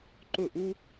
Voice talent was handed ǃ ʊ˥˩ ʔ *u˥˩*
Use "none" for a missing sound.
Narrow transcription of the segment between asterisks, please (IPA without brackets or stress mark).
u˥